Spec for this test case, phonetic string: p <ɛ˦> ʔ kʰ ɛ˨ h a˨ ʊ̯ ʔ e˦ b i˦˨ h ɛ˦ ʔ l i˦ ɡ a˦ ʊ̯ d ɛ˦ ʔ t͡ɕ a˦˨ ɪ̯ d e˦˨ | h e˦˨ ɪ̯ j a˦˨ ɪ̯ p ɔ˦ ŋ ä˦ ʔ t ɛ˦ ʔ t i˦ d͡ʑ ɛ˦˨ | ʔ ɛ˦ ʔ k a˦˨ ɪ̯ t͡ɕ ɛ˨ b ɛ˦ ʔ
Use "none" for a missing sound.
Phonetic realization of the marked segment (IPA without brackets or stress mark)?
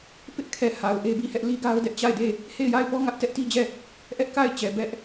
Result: ɪ˦